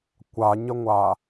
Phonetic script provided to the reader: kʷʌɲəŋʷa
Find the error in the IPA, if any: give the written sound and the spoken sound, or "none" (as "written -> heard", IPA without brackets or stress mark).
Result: ʌ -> a